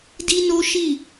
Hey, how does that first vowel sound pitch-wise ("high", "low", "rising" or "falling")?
high